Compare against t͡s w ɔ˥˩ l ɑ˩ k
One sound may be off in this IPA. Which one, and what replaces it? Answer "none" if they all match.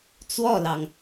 k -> ŋ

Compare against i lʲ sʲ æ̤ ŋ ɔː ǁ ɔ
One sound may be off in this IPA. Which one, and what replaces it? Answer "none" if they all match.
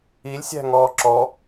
none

